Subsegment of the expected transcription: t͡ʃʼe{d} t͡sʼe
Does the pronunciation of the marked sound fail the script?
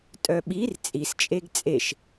yes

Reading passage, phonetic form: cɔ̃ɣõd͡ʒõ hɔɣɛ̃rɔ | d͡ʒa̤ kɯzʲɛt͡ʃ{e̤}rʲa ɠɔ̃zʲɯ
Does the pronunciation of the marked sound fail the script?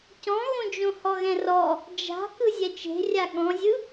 no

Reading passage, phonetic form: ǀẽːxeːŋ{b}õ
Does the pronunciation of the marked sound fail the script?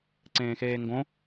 yes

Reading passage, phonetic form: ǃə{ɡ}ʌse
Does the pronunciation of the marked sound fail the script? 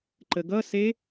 no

